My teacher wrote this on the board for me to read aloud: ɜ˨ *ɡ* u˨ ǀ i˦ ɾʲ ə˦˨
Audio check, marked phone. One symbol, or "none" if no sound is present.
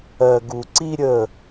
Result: ɡ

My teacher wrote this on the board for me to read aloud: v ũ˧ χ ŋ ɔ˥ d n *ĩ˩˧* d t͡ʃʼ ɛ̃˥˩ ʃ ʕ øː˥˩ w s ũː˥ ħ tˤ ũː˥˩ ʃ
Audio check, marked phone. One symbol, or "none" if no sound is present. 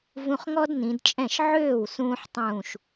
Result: ĩ˩˧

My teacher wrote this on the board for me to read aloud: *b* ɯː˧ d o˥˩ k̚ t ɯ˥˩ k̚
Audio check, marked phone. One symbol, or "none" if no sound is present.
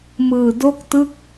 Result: m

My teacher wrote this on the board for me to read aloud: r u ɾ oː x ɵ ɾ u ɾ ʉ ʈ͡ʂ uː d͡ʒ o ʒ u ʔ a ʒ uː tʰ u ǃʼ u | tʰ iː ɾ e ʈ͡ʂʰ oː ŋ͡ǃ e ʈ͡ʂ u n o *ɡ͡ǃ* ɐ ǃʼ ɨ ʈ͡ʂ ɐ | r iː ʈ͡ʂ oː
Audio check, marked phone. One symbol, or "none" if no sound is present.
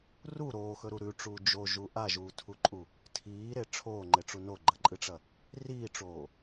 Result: ɡ͡ǃ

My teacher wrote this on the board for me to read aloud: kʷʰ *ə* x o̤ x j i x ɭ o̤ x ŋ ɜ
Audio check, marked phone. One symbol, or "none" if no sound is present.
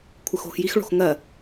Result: ə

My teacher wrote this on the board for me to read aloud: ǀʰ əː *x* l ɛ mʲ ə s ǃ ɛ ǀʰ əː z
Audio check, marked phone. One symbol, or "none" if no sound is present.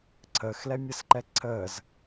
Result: x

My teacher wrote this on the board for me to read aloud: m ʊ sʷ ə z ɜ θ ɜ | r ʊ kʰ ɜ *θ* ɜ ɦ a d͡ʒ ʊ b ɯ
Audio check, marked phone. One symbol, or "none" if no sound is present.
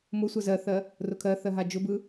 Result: θ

